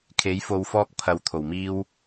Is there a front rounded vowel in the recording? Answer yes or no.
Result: no